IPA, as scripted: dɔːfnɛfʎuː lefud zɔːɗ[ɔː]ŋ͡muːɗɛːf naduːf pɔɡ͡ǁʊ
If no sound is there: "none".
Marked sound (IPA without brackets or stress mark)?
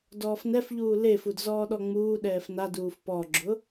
ɔ